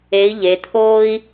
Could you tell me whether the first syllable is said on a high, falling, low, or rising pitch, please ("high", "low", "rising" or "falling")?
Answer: rising